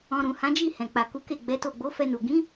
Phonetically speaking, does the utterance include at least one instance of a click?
no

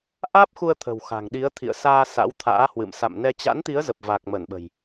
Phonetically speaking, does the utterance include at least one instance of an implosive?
yes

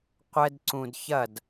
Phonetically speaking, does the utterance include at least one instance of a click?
yes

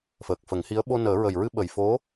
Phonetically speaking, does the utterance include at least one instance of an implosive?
yes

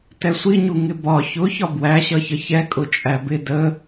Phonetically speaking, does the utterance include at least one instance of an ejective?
yes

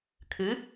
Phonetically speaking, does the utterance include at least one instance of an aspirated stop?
yes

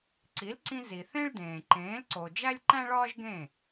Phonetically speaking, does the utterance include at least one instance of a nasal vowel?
yes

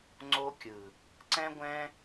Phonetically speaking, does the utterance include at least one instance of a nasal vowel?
yes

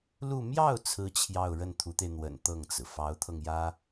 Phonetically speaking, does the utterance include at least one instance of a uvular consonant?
no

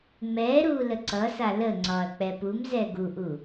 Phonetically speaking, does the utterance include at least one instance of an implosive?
no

